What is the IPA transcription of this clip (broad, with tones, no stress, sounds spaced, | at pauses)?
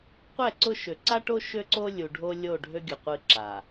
qʷ ɛ˦˨ ǀ ʊ˦ ʃ ø˨ ǀ a˦ ʈ o˦ ʃ ø˦ ǀ o˦ lʲ u˨ ɖʱ o˦ lʲ o˦˨ ɖʱ ø˦ ɡʲ ʊ˨ qʷ ɨ˦ ǁ a˨